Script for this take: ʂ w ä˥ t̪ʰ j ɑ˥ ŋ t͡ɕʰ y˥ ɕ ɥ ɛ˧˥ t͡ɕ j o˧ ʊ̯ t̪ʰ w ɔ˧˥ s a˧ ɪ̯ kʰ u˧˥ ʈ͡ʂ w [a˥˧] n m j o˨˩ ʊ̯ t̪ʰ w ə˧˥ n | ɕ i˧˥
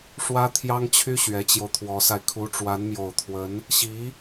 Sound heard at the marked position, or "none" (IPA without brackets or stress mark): a˧˥